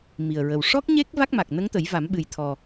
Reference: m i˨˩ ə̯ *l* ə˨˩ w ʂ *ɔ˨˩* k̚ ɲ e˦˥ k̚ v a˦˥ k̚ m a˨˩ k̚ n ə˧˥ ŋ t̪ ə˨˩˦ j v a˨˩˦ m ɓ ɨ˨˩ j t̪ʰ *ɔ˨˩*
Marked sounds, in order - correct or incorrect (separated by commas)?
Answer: incorrect, incorrect, correct